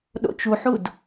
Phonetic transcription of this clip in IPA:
ɗ o̰ t͡ʃ u ħ u d

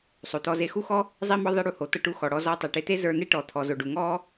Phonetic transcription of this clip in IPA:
sˤ o˩ t̪ ɔ˧ z e˧ x u˥ x ɔ˥ | zˤ i˥ m ɔ˥ ðˤ i˧ ɽ u˧ h o˩ t̪ ɤ˧ ʈ u˧ x ɔ˩ ɽ ɔ˧ z ɔ˧ tˤ e˩ ʈ e˧ t̪ e˥ z ə˞˧ n̪ e˥ ʈ ɔ˩ t̪ʰ ɔ˩ z o˩ ɖ u˩ ŋ ɔ˥

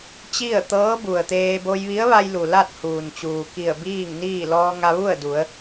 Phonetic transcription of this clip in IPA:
t͡ɕ i˥˨ ə̯ t̪ ɤː˧˥ b u˩ ə̯ t̪ eː˧ b o˧ j ʋ i˧˥ ə̯ ʋ a˧ j l u˩ l a˥˨ t̚ h uː˩ n t͡ɕ uː˩ k i˧˩ ə̯ b iː˥˨ ŋ n iː˥˨ l ɔː˧ ŋ a˧ ʋ u˥˨ ə̯ d u˩˧ ə̯

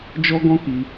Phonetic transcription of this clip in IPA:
d͡ʒ ɔ˦ ɡ ɔ̃˦ k i˧

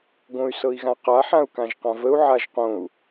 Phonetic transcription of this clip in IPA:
ɡ õ y̯ s ɤ i̯ ɣ ã q a ħ ã u̯ k ã ʒ q ã v ə u̯ ʕ a ʒ q õ u̯

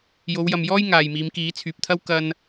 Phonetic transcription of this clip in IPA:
j o˨˧ w j ɐ˨ m j ɔː˥ j ŋ aː˨ j m iː˨˧ m k iː˨˥ t͡sʰ yː˨ p̚ t̪ʰ ɐ˥ w k ɐ˥ n

